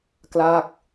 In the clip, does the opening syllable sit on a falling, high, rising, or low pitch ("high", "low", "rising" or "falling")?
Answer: falling